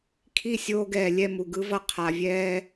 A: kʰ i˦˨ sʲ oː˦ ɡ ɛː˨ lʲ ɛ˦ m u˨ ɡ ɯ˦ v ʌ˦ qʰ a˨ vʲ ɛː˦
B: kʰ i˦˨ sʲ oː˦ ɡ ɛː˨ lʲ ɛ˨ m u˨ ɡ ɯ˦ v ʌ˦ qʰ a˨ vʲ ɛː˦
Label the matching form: A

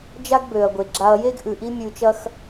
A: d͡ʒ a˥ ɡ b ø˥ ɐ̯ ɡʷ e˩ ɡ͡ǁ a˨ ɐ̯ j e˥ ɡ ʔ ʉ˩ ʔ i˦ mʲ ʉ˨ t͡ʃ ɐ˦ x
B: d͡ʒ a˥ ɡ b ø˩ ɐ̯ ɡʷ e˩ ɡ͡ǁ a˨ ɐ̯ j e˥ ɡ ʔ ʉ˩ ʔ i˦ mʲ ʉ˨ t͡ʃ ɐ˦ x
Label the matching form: B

